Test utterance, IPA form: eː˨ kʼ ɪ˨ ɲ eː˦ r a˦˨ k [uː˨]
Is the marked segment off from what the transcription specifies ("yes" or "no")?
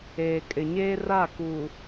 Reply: no